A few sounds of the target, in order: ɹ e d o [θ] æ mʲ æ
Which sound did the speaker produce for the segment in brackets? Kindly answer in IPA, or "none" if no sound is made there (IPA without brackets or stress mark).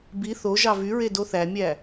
θ